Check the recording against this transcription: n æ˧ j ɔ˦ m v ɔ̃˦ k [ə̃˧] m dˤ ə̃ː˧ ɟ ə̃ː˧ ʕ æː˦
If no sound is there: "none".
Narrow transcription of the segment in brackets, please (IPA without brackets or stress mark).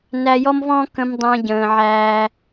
ə̃˧